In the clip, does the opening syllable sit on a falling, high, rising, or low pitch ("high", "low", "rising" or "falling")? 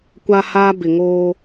high